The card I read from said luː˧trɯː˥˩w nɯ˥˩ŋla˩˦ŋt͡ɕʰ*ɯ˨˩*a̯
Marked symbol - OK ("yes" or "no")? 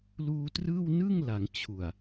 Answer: no